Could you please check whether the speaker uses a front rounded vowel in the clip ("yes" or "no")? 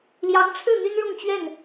yes